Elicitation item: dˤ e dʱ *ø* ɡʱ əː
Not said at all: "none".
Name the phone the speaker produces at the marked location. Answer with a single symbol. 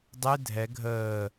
ɛ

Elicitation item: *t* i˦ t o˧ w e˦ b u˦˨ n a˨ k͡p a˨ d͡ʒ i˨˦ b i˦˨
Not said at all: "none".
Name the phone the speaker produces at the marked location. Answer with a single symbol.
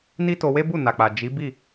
n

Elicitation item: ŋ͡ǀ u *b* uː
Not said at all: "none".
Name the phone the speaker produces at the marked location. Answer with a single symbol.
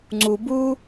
b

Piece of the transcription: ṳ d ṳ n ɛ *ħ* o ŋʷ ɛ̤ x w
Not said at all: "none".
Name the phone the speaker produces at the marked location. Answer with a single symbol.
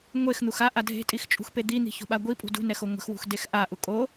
x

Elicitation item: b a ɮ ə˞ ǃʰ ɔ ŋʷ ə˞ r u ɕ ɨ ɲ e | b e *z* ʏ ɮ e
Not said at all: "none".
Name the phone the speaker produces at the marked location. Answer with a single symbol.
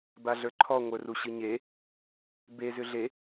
z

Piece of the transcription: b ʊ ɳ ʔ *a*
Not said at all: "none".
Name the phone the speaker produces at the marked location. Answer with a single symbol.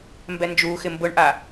a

